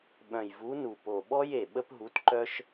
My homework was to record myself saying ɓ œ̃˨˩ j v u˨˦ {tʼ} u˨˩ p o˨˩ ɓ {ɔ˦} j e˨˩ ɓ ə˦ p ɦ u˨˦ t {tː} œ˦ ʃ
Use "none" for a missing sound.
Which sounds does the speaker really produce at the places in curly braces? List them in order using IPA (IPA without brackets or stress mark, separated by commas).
n, ɔ˦, ǃ